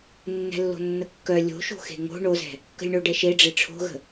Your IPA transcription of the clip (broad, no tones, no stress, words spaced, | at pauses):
nːɛ̤lːo̤nːəkːœ lʲo̤ʃo̤ xe̤ŋo̤ ɳozɛ̤ | kə̤lʲɳoɖɛʃe ɖ͡ʐeʈ͡ʂʰo̤ɣə̤